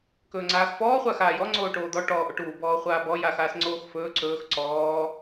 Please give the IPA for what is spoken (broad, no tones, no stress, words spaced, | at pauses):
kɵːŋ͡ǀaːxfɔː χʷaxaːjɔ ŋ͡ǀoːʈoːd̪ɔ ʈɔːʔoʈuː bɔːχʷaːbɔ jaxaːsŋ͡ǀoːxfɵː ǀɵːx ǀɔː